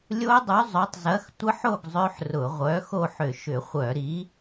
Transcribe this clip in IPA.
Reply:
lʲ o˦˥ dˤ y˨˥ zˤ ø˨˥ tˤ z ɐ˨˥ x tʷ ə˦˥ ħ o˥˨ ɡ zˤ ø˦˥ ħ r ʊ˧˩˧ ʁʷ œ˨˥ x o˥˨ ħ ʏ˧˩˧ ʃ ʏ˧˩˧ χʷ œ˧˩˧ ɾ i˨˥

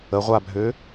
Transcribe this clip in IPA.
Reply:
ə ʁʷ a bʱ ø

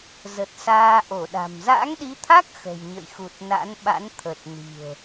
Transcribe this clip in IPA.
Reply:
z ə˨˩ t̚ s aː˧ ʔ o˧˩ ɗ a̤˨˩ m z a̰˧˥ ŋ ɗ i˨˦ t̪ʰ a˦˥ k̚ x ə̤˨˩ j ɲ ə̰˧˨ j x u˨˩ t̚ n a̰˧˥ n ɓ a̰˧˥ n t̪ʰ ə˨˩ t̚ n i̤˨˩ ə̯

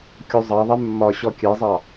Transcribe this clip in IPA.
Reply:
kʲ o zˤ ɑ ðˤ ɛ mː ɒ ɕ ɔ kʲ ɛ zˤ ɑ

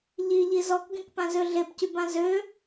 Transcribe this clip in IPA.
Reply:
ʎ i ʎ i z ɔ k ɡ ẽ k p ã z ø ɮ e p c y b ã z ø

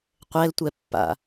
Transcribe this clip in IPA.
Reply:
qʷ ɛ l tʷ ɛ pː a̰

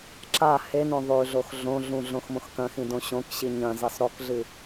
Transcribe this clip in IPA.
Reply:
ǁ a h e n õ ðˤ ʉ ɮ o x ɮ õ ɮ ũ ɮ õ x m õ x k ɐ̃ x ĩ d õ ɕ õ k ɕ i ɲ ɐ̃ z i sˤ ɾ o k ɮ ɨ

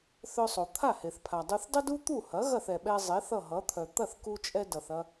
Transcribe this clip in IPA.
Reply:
θ œ˧ sˤ o˩ t̪ʰ a˥˩ h e˩ θ pʰ a˩ dˤ u˧ θ dˤ ə˥ d u˥ t̪ u˥˩ h ɐ˩˥ ɣ ɐ˥˩ θ ɛ˩ ɓ ɛ˧ zˤ e˩˥ θ ʌ˥˩ ɦ ʌ˩˥ t̪ʰ œ˩ t̪ ɐ˥˩ θ k u˧ t͡ʃʼ ɛ˧ d ʌ˩ θ ɐ˧

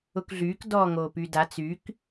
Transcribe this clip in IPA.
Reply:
ʊ k ɮ yː k d ɔː ŋ oː p y d a t͡s y k

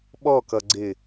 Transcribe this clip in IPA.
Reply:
ɓ ɔ k ʌ ɡ͡ǀ ɪ

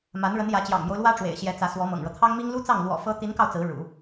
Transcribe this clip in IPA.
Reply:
m a˧˥ n ɻ ə˧˥ n j ä˧˥ t͡ɕ j ɑ̰˨˩ ŋ m j o˦ ʊ̯ l w ä˥ ʈ͡ʂ w ḛ˨˩ ɪ̯ ɕ j ɛ˧˥ t͡s ä˧˥ s w ɔ˧˥ m ɤ̰˨˩ ŋ ɻ ɤ˦ t̪ʰ ɑ˥ ŋ m i˥ ŋ l u˥ t͡s ɑ˥˩ ŋ l w ɔ̰˨˩ f ɤ˧˥ t̪ i˧˥ n k ɑ˧ ʊ̯ t͡s ɹ̩˧˥ ɻ ṵ˨˩˦

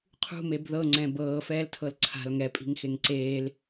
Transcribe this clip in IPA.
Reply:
qʰ ṳ m e b ð ɤ ŋ͡ǀ ɛ̃ b ɤː f ɛː l tʰ ɤ l ǀʰ a̤ l ŋ ɛ pʼ i̤ ŋ x e ŋ ǀ eː l

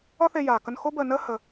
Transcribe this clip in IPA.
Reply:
ɒ˦ θ e˧ j aː˨ k ə˧ n x o˦ b əː˧ n əː˦ h ə˧

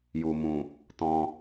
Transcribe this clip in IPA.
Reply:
j u˨ m ũ˨ | t ɔ̃˧

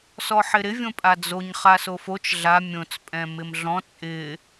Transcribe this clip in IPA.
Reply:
s ɔ ħ ɪ ɾ ɪ vʲ õ pʼ a d͡z o ɲ χ a s o f o t͡ʃ ɮ a mʲ õ t͡s pʼ ɛ̃ m ɪ m ɮ ɔ̃ t͡sʼ ɪ

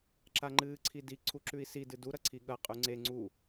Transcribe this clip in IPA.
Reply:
ǁ a ŋ͡ǃ ɨː ǀʰ i d i ǀʰ u ǁ ʉ i̯ s i d ɨ d u ɾ ɐ ǀʰ i ɠ ɐ qʼ ʉ ŋ͡ǀ e ŋ͡ǀ u

